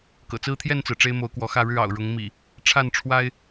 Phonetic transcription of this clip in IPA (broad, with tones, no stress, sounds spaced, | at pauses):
k ɤ̰˨˩ t͡s ɹ̩˦ t̪ʰ j ɛ˥˨ n t͡s ɹ̩˩ ʈ͡ʂ e˦ ɪ̯ m o˨˦ ʊ̯ k w ɔ˨˦ x ä˥˨ ɻ ɻ̩˥˨ ɑ̰˨˩ ʊ̯ ɻ ʊ˨˦ ŋ m ḭ˨˩ | ʈ͡ʂʰ a˥˨ n ʈ͡ʂʰ w a˦ ɪ̯